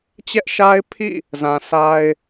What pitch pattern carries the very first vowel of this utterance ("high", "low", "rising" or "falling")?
high